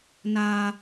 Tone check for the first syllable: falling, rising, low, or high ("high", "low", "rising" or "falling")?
high